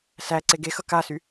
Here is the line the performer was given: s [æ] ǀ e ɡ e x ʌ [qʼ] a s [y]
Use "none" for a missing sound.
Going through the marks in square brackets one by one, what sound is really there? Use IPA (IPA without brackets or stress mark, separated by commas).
æ, k, y